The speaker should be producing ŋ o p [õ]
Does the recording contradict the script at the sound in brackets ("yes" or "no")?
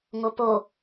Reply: yes